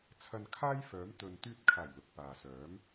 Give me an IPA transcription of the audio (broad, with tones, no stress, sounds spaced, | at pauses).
t͡sʰ ɐ˧ n kʰ aː˥ j f œː˨˥ m t̪ ɵ˨ n t̪ yː˧ t̚ kʰ aː˨˩ j l ʊ˨ k̚ p aː˨ s œː˨˥ m